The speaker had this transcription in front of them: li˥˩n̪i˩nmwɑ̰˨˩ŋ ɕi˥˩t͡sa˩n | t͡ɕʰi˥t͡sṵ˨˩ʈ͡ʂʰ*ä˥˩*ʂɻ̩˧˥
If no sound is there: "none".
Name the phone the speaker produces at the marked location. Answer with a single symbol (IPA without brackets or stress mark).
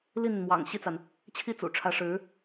ä˧˥